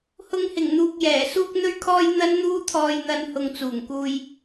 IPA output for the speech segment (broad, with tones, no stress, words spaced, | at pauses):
hʊ˧ŋhɪ˨˩ŋn̪uː˨k̚ jɛː˨˩ suː˧k̚n̪ɵ˧ɥkʰɔː˧j n̪ɐ˥nn̪uː˥t̪ʰɔː˧jn̪ɐ˧n hʊ˨ŋ t͡suː˨˩ŋkuː˧j